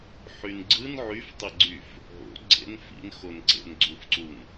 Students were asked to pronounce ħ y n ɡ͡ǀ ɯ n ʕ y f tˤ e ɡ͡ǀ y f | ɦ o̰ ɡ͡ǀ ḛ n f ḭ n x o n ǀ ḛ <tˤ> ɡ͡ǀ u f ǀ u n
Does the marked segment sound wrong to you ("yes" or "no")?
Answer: yes